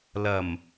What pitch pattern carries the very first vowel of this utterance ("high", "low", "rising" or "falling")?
low